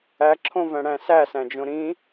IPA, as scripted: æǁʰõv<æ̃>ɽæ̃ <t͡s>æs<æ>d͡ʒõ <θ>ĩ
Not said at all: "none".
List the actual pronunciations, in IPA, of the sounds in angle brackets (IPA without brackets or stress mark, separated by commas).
æ̃, s, æ̃, ɾ